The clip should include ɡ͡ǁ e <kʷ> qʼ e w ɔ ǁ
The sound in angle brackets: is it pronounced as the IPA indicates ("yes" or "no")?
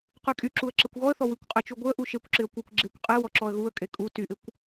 yes